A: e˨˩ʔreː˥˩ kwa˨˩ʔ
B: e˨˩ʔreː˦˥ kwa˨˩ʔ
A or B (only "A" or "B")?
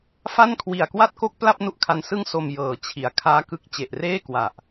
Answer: A